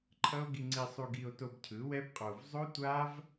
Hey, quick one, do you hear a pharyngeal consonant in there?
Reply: no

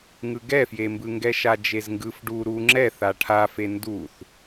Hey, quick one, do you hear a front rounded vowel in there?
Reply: no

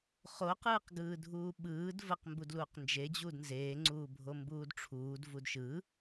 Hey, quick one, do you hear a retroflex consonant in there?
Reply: yes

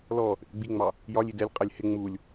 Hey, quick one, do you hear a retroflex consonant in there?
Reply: no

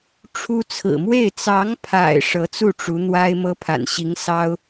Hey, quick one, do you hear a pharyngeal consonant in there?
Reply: no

